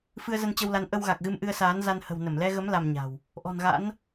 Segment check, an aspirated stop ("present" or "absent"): absent